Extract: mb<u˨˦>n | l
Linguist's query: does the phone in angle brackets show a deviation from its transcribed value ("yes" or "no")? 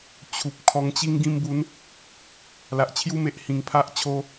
no